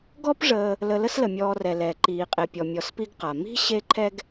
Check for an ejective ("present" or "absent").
present